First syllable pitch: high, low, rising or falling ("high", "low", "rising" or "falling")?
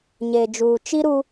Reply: low